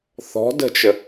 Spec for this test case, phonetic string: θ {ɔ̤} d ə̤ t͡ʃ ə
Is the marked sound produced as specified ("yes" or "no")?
yes